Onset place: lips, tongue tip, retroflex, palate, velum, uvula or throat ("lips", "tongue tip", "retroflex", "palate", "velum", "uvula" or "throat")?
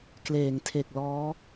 velum